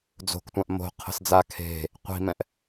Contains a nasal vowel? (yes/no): yes